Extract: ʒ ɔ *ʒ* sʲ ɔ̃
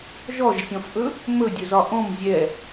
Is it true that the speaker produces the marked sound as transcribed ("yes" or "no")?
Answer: yes